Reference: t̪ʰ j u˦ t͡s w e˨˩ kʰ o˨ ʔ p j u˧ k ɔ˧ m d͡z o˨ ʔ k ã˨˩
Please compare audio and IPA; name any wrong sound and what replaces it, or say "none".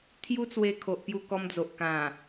e˨˩ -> e˧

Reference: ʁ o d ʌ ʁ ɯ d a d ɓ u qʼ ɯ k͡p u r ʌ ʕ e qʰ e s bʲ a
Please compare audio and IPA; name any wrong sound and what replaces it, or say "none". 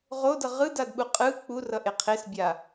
ʕ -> ʔ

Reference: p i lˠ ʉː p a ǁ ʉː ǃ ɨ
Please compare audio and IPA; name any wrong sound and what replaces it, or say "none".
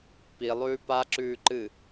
none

